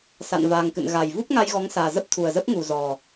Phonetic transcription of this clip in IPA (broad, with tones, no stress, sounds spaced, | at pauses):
s a̰˧˨ n v aː˨˩ ŋ k ɨ̰˧˨ n ɣ a˨˩ j v u˦˥ p̚ ŋ a˧ j ɣ ɔ˨˦ ŋ s aː˨˩ z ə˦˥ p̚ t̪ʰ u˨˩ ə̯ z ə˦˥ p̚ ŋ u˨˩ z ɔ˨˩